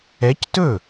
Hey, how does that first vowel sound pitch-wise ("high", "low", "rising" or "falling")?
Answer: rising